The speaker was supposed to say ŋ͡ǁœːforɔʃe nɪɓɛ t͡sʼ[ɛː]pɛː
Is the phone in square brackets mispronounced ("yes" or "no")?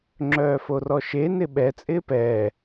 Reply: yes